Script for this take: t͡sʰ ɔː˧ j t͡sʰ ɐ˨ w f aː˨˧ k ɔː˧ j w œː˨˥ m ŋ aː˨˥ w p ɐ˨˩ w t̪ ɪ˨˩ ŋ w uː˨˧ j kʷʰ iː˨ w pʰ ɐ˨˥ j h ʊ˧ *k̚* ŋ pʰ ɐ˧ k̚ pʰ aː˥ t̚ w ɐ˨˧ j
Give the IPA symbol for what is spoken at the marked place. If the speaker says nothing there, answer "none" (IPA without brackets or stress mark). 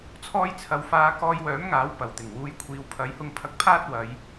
none